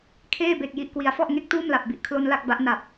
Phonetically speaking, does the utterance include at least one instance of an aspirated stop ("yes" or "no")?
yes